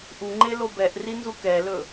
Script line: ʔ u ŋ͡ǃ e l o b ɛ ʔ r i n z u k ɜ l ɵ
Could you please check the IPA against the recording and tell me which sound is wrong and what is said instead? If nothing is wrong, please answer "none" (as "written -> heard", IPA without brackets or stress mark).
ɜ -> ɛ